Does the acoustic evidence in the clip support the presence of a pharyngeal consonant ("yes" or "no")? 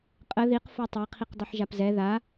yes